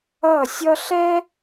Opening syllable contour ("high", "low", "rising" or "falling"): falling